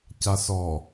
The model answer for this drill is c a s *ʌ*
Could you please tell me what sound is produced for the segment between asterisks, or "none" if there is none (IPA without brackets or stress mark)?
ɔ